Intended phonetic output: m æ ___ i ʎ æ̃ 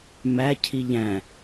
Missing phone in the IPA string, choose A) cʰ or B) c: A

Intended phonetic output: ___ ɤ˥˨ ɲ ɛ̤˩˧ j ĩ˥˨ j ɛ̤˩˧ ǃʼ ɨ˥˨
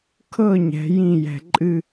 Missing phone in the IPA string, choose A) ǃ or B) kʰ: B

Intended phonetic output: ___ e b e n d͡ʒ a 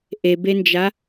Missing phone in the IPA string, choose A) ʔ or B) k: A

